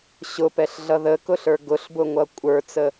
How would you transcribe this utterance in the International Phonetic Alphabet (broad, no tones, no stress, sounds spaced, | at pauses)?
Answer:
ɕ ʊ p ɛ ɬ ɮ ʌ ð ə k ʊ ɬ ə˞ ɡ ʊ ɬ b ʊ ŋʷ ʌ kʷʼ ə˞ t͡s ə